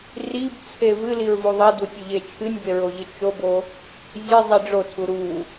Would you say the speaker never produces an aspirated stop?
no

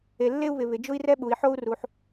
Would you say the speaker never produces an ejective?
yes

